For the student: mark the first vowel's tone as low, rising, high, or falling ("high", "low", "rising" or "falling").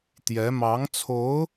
rising